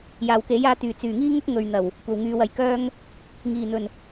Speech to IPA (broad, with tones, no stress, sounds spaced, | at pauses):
j aː˨˩ w k e˨˥ j aː˨˥ t̪ yː˨˩ t͡s yː˨˩ ŋ iː˥ ŋ ʊ˥ k̚ ŋ ɵ˨ ɥ n̪ ɐ˨˩ w | kʷ ɐ˨˩ w ŋ yː˨ w ɐ˧ j k œː˥ ŋ | ŋ iː˨˩ n̪ ɵ˨˩ n